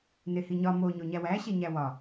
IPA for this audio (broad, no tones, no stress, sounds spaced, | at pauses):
n e h i ɲ ɒ m o ɲ o ɲ æ w æ ɕ e ɲ æ w ɒ